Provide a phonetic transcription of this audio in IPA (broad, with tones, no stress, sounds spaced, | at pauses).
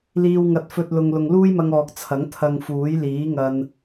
l iː˧ w ŋ ɐ˨˥ t̚ f ɵ˨ t̚ l ʊ˨ ŋ l ʊ˨ ŋ l uː˥ j m ɐ˧ ŋ ɔː˨ k̚ t͡sʰ ɐ˨˥ ŋ t̪ʰ ɐ˧ ŋ f uː˨˥ j l iː˨˥ ŋ ɐ˧ n